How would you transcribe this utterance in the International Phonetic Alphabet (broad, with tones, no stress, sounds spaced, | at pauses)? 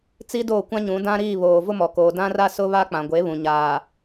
t͡s i˦ d oː˦˨ kʷ ã˦ ɲ ũ˨˦ d ã˦ ɾ iː˦˨ β oː˨ v ʊ˦ m ɔ˨ k oː˨ d ã˦ r a˦ s ʊ˦ β a˦ k͡p ã˨ ɡʷ e˨˦ β ũ˨ ɲ aː˨